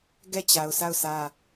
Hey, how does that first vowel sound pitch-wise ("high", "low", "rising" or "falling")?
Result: falling